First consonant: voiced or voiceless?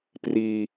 voiceless